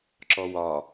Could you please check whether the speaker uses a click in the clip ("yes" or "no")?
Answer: yes